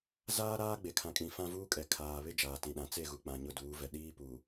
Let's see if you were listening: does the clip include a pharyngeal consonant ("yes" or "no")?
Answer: no